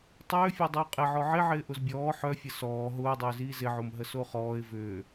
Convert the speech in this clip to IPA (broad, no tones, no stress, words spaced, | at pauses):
tˤʏːfʲo dˤʏːqʼɪʕɔ ʕɪʕɪː ʔʊzbʲɔː ħœfʲə sɔː ɦʊːdˤʏːziː zɪʕom ɦəsoχɔːɪ̯ vʏː